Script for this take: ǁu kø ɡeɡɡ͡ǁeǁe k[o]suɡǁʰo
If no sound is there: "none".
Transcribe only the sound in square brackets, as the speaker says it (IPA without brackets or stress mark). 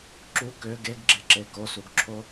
o